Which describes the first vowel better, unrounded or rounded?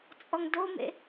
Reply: rounded